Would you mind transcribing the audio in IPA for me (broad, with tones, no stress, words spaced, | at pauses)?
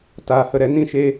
taː˨hə˨ɾɛ˨ nĩ˦˨ʃeː˧